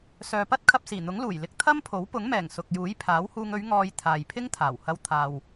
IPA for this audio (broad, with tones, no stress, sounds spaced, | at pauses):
s œː˨ p ɐ˥ t̚ kʰ ɐ˧ p̚ s iː˨˩ n̪ ʊ˨˥ ŋ l uː˨˩ j l ɪ˧ k̚ t̪ʰ ɐ˥ m pʰ o˨˥ w p ʊ˨˥ ŋ m ɛː˨˩ ŋ s ʊ˨ k̚ j uː˨˥ j pʰ aː˨˥ w h uː˧ ŋ ɵ˨˧ ɥ ŋ ɔː˧ j t̪ʰ aː˨ j pʰ ɪ˥ ŋ t̪ʰ aː˨˩ w h ɐ˧ w t̪ʰ aː˨ w